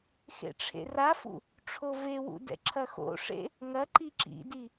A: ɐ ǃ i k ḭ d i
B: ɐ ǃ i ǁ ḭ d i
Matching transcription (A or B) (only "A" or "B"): B